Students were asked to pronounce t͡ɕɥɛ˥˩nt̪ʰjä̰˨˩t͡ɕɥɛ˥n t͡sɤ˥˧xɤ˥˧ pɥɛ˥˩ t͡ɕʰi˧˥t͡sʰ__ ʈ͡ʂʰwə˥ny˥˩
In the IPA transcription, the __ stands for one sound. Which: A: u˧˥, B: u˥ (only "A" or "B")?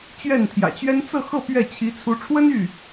A